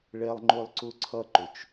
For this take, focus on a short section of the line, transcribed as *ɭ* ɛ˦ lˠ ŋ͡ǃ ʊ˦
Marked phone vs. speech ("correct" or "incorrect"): correct